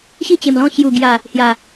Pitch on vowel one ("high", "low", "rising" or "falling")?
falling